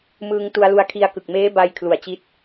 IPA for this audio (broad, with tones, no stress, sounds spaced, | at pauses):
m ɯː˧ ŋ t u˧ a̯ l u˧ a̯ kʰ i˦˥ a̯ k ɯ˨˩ k̚ m eː˦˥ b a˧ j kʰ l u˨˩ a̯ t͡ɕ i˦˥ t̚